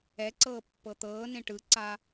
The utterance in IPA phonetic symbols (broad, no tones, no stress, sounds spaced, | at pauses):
ɛ ǀ ɤː pː ɤ t̪ ɤː n ẽ ʈ ɯ ǀ a